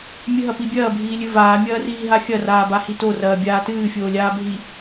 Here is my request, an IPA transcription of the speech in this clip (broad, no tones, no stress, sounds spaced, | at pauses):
mʲ ɨ ɦ ɐ p i bʲ ɐː bʱ iː lʲ ɨ v aː mʲ ɐː r iː ɦ a xʲ ɐ r aː b a h i t o r ɐː bʲ aː t ɨː fʲ oː lʲ aː bʱ i